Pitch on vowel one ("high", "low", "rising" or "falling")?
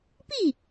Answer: falling